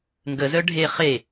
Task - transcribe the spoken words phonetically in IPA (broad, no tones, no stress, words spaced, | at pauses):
ŋɡəzœ ɖʱe χe